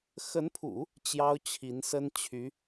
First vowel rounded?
no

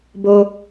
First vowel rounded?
yes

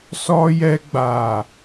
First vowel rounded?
yes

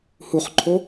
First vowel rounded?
yes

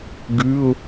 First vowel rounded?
yes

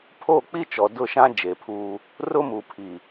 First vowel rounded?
yes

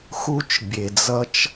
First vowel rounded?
yes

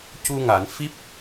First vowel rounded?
yes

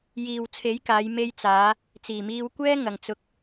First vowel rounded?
no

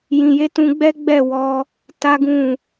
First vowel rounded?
no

